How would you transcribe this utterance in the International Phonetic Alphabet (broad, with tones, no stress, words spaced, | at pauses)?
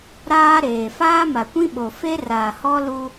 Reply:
ɾaː˦ɾeː˨ faː˦ma˨kʷĩ˦ɓo˨ fe˦raː˨hɔ˦ lu˦